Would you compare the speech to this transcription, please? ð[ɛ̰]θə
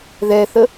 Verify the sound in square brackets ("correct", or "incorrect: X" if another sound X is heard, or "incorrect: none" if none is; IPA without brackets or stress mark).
incorrect: ɛ